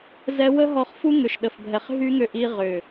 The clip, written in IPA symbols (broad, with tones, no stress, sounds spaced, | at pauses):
z ɛ˧ w ə˦ ɦ ɔ˧ χ f u˦ ŋ ʏ˨ ʃ ɗ ə˨ f bʱ ɛ˨ χ ɦ y˦ ŋ ʏ˧ ʔ i˧ ʁ ʏ˨